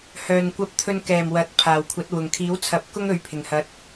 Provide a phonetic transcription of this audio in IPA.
h œː˨ n kʷ ɐ˧ p̚ t̪ʰ ɵ˧ n k ɛː˨˩ m w ɐ˨˥ t̚ pʰ aː˨˩ w kʷʰ ɐ˨˥ t̚ w ʊ˨˩ ŋ kʰ iː˨˥ w t͡sʰ ɐ˨˥ p̚ k ʊ˥ ŋ ɵ˨˥ ɥ pʰ ɪ˨˩ ŋ h ɐ˧ t̚

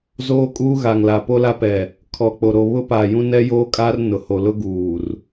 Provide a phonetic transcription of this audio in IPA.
z oː˦ kʼ uː˦ ɣ a˨ ŋ l a˨ p o˦ l a˦ p ɛ˨ | kʰ ɔ˨ k͡p o˨ ɾ o˨ β ʊ˦ p aː˨ j ũ˦ n ɛ˦ j oː˦ kʼ aː˦ r n ʊ˨ h o˨ l ʊ˦ ɡ uː˨ r

